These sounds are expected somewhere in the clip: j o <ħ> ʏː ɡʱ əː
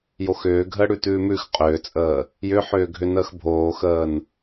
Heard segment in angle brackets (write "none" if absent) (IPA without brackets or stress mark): x